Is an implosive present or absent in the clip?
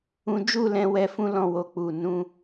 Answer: absent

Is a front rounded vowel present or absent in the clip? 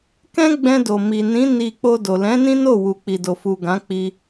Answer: absent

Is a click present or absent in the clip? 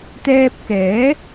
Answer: absent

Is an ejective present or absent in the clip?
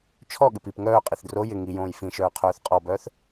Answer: present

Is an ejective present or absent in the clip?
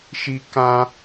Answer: absent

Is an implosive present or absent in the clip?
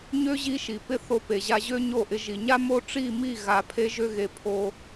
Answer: absent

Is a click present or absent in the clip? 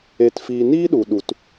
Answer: absent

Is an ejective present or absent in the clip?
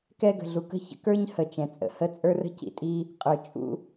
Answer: present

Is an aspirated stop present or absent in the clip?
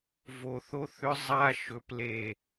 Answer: absent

